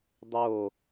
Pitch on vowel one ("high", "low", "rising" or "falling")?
falling